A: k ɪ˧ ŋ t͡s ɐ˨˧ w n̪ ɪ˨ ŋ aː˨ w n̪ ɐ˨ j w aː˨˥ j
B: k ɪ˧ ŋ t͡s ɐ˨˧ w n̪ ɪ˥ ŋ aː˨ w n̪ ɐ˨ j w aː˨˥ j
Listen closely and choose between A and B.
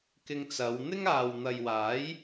B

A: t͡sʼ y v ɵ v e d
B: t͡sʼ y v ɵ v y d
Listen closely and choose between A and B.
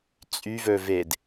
A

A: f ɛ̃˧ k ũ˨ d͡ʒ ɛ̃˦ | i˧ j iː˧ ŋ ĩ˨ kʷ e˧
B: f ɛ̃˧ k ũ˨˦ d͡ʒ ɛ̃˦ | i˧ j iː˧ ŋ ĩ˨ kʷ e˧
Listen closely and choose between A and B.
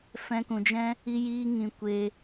A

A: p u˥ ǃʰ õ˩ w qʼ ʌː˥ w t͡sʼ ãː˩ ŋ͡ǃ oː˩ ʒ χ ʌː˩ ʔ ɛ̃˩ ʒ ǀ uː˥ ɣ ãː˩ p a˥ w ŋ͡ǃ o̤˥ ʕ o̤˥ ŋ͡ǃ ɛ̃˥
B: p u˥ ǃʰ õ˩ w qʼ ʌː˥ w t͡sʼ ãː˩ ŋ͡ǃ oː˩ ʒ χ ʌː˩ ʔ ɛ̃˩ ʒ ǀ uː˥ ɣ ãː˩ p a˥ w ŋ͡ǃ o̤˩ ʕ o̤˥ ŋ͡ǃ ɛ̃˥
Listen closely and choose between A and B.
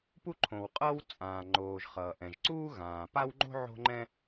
A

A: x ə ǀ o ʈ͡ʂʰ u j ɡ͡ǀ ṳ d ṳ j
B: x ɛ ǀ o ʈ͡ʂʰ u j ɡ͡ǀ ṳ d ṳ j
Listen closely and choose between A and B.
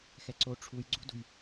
B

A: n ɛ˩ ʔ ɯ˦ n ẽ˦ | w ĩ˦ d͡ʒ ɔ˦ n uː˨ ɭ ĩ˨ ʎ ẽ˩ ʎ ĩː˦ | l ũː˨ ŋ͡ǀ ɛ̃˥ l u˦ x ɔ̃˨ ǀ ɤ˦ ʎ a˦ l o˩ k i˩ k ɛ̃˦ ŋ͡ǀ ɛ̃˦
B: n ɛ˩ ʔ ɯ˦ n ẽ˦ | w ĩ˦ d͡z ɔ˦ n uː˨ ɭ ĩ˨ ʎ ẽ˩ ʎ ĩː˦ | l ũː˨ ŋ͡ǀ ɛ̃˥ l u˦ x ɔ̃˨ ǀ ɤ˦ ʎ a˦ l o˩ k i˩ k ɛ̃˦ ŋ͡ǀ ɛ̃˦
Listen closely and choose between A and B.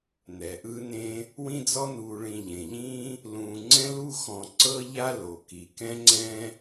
B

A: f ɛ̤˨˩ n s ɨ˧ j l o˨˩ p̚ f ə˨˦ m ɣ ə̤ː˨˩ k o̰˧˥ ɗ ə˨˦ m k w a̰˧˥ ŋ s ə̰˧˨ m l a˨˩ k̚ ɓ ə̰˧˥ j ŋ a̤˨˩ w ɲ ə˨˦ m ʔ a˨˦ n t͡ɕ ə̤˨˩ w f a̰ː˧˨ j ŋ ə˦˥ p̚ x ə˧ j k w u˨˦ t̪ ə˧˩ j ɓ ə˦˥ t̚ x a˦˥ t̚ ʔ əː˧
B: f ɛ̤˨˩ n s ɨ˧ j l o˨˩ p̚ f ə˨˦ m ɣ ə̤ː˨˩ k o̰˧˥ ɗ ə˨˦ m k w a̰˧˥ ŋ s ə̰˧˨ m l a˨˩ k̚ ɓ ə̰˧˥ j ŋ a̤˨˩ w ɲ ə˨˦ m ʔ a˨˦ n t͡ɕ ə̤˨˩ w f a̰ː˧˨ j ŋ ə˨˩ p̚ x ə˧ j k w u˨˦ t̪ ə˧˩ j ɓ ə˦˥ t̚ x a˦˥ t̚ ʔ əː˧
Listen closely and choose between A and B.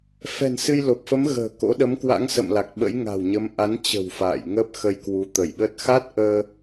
A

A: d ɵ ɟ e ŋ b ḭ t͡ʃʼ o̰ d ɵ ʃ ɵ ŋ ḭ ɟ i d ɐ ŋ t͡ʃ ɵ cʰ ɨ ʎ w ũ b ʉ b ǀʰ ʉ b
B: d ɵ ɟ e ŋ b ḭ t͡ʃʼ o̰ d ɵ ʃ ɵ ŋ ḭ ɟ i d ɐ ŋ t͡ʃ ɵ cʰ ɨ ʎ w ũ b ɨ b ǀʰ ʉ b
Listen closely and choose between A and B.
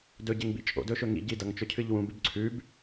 A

